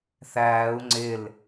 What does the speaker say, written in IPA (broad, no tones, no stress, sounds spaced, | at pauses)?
θ æː u̯ ŋ͡ǀ ɪ l